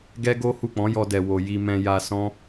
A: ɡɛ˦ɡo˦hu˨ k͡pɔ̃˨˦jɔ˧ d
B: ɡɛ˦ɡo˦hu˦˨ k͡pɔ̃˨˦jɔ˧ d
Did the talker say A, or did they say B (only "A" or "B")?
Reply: B